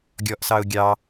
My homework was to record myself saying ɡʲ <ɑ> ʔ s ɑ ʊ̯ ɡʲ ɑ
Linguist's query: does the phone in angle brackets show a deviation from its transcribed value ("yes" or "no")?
yes